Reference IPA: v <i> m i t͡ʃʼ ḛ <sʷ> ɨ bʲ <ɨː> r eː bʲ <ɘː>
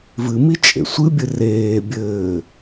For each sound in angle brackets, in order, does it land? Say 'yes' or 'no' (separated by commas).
no, yes, no, yes